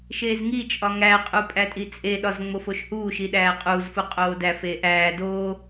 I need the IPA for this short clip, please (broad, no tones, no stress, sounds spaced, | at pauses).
ʃ eː z ŋ i t͡ʃʼ ɒ ŋ æ qʼ u pʼ æ tʼ i t͡sʼ e ɗ ɒ z ŋ͡m o f o ʃ h uː ʃ i ɗ æː qʼ uː z f u qʼ oː d æ f eː ʔ æː d oː